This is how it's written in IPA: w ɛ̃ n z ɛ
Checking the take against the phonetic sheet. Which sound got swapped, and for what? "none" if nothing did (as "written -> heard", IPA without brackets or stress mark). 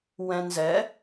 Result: none